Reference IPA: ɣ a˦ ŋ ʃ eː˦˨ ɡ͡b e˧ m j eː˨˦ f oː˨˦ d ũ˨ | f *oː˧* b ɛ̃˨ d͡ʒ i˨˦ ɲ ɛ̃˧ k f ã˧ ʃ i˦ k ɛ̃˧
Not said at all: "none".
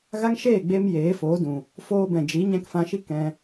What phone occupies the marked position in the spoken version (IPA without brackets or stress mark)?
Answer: oː˧